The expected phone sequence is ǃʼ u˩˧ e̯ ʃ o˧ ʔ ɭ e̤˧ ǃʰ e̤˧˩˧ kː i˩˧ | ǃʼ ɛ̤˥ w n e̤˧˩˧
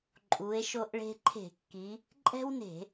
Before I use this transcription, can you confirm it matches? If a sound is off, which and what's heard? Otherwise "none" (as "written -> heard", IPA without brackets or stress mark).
none